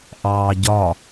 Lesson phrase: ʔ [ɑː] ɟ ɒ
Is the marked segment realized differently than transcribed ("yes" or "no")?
no